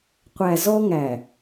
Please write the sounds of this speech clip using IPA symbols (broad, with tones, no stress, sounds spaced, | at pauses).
qʷ æ˨ z ɔ˦ ŋ æ˨